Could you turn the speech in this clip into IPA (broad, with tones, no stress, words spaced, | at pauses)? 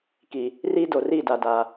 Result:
ki˨ | riː˦do˨ri˦˨da˨ da˨